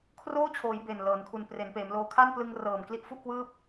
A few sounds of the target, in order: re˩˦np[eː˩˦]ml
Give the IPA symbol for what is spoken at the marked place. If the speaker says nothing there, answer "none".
eː˩˦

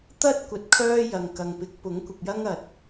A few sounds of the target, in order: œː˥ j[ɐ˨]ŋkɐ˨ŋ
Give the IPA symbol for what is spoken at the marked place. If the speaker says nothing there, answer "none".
ɐ˨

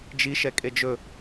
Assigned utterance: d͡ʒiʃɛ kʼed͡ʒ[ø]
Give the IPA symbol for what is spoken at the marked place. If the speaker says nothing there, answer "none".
ɵ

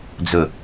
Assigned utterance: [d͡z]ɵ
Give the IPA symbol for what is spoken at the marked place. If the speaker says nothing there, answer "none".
d͡z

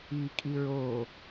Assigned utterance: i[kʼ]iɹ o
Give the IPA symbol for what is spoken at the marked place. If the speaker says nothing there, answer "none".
kʼ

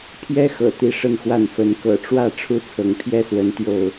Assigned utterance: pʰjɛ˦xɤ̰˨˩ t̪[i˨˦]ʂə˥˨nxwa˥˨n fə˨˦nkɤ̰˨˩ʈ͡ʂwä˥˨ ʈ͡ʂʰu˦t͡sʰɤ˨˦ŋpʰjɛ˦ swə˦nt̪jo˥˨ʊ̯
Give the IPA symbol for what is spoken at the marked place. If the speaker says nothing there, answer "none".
i˥˨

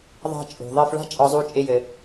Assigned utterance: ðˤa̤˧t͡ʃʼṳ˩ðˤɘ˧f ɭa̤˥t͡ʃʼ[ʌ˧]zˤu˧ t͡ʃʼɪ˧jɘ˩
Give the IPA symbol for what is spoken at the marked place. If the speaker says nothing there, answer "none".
ɒ˧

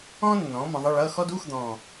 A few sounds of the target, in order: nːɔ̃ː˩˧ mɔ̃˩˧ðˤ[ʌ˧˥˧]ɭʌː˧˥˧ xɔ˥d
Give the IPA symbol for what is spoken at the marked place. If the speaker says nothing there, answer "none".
ʌ˧˥˧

